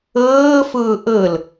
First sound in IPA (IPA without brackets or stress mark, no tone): ɤː